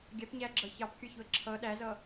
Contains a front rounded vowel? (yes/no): no